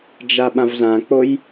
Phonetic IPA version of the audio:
d͡ʒ a ɓ ã v z ã k͡p o j

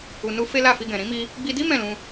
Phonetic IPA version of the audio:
u˨ n u˧ f e˦ l a˦˨ f i˧ ɡ ɛ̃˨ ɾ ĩ˨˦ m i˧ | ɡ͡b i˧ d i˦ m ɛ̃˦˨ l ũ˧

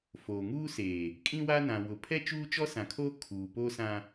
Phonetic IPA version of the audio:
f oː˨ ŋ uː˦ s eː˨ | kʼ ĩ˦ w a˦ n ã˨ w ʊ˨ pʰ ɛ˦ t͡ʃ uː˦ t͡ʃ ɔ˦ s ã˨ kʰ oː˦ kʰ uː˨ p o˦ s ã˦

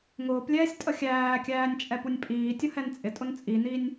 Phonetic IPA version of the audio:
ŋ ʊː p lʲ ɛː sʲ tʼ ə xʲ æː kʲ æː nʲ t͡ʃʼ ɛ p u nʲ pʼ iː tʲ ʊ h ɛ n t͡sʼ ɪ tʼ ʊ n t͡sʼ i n i nʲ

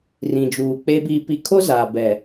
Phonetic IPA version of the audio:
r ĩ˨ d͡ʒ uː˨ k͡p e˦ b iː˨ p i˨ kʰ o˦ z aː˨ b ɛ˨

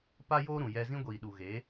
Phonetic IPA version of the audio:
p a˦ j oː˦ ɾ ũ˨ j ɛ˧ z ĩ˦ ɡʷ iː˨ ɗ u˨ ɣ e˨˦

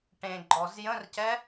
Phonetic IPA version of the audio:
ʈ ẽ ɡ͡ǃ ɔ z j ə̃ r c ɛ

